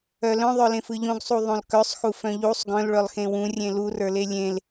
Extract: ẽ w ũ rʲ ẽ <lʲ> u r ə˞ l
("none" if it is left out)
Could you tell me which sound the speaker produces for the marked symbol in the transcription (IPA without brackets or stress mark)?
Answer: l